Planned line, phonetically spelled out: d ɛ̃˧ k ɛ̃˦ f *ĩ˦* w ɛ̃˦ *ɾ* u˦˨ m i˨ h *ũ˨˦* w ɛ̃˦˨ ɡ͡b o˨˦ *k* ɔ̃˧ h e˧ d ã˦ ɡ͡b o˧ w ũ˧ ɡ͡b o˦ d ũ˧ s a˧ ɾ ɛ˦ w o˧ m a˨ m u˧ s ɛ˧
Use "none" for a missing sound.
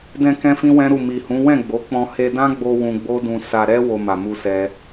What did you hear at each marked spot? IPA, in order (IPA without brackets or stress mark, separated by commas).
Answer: ĩ˦, ɾ, ũ˨˦, k͡p